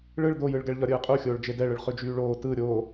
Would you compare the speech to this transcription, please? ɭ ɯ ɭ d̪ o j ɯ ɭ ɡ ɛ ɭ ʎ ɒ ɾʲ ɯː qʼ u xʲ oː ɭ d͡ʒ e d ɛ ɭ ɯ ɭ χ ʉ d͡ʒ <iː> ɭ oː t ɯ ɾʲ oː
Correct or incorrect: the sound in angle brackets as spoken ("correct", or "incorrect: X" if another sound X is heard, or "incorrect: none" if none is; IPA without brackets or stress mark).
incorrect: yː